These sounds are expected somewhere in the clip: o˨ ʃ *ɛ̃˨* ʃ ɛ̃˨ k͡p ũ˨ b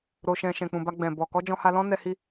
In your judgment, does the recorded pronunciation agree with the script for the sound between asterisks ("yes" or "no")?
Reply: yes